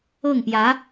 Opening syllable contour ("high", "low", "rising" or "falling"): falling